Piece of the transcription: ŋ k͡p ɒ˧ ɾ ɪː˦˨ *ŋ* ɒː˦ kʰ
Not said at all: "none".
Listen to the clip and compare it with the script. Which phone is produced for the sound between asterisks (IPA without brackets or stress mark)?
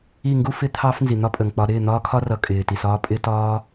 n̪